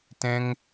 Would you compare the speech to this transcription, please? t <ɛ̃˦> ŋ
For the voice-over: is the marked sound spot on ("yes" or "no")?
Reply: yes